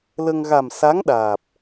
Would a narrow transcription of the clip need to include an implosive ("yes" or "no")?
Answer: yes